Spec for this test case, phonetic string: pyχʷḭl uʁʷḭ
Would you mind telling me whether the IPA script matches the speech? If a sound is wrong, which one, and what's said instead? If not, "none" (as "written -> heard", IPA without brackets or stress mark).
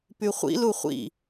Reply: ʁʷ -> χʷ